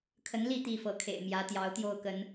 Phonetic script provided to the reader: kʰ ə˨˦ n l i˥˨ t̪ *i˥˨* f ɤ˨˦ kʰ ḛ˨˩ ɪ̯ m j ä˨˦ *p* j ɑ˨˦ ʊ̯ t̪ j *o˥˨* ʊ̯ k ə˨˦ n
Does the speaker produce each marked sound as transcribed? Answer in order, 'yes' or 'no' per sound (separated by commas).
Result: yes, no, yes